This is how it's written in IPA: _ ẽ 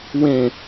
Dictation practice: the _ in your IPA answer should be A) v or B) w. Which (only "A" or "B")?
B